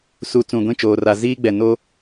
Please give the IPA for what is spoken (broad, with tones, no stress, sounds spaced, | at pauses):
s u˨ t͡s ũ˨ ɡʷ ĩ˦˨ t͡ʃ oː˨ r a˨ z iː˦ ɡ͡b ɛ˨ n o˦